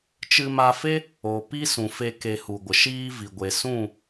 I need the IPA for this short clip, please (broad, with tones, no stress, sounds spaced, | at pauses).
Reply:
t͡ʃ ɨ˧ m a˧ f e˦ | o˨ p i˦ s ũ˨ f e˧ k e˨ h u˨ ɡʷ ə˨ ʃ iː˦ v i˨ ɡʷ e˨ s ũ˦˨